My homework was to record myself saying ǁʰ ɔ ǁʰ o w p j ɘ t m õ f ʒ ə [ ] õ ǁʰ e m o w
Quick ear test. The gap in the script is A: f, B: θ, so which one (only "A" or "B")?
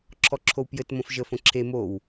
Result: A